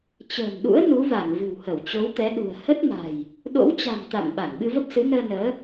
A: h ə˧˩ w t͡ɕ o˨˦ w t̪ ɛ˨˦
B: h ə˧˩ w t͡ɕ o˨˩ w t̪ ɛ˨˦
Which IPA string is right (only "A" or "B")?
A